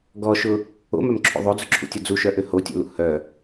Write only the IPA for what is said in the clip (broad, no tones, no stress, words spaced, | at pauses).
ɡɔʃʊ | o̰mœmǁʰo̰ ðˤod͡zʊǁʰṵtʲɐ d͡zuʃœʔø hotʲo̰lṵ hœ